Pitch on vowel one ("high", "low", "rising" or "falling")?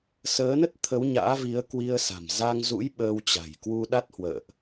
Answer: rising